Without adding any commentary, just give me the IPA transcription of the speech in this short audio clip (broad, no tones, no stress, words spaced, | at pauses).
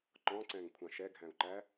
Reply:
ǃɔ̃ǀɛ̃ŋkʷʰɑ̃ʃ ɛɡʱæ̃u̯ǃæ